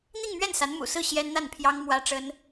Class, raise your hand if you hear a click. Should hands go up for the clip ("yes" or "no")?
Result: no